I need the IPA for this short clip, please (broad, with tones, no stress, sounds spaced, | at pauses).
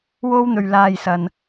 w o˧ w n̪ ɵ˨ ɥ l aː˨ j s ɐ˨ n